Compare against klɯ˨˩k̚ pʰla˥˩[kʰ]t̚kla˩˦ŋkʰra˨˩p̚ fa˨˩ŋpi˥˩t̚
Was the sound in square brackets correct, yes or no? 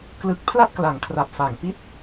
no